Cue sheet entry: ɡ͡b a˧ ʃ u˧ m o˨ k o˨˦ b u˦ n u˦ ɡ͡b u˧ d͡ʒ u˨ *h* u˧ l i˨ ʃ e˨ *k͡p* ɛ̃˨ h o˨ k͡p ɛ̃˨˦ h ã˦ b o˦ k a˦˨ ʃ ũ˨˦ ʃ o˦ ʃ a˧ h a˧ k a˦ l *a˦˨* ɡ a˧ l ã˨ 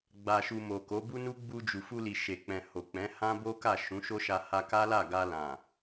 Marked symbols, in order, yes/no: no, yes, yes

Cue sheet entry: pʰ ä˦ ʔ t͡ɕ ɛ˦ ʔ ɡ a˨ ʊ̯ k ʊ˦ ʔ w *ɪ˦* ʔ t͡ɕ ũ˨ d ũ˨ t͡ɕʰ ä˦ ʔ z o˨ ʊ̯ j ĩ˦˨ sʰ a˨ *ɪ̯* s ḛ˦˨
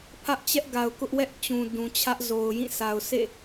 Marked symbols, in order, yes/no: no, no

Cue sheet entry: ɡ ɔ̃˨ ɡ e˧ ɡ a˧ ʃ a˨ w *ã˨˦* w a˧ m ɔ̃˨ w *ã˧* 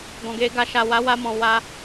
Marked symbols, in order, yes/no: no, no

